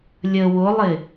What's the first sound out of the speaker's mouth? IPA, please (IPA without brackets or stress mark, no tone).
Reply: lʲ